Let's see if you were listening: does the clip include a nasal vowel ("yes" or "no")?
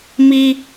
no